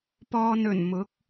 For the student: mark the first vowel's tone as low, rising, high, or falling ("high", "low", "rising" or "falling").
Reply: low